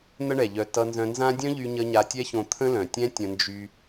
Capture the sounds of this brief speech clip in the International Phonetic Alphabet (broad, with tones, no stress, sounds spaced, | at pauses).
n̪ ə˦ ɳ ɛ˨ ʎ œ˧ t ʌ˧ n z œ̃˧ n z ã˦ dʲ œ̃˦ ʎ y˧ ɲ ə˧ ɲ a˧ tʲ ɛ˦ ç õ˧ t̪ʰ ə̃˦ l œ̃˨ tʲ ɛ̃˦ tʲ ə̃˧ n d͡ʒ y˧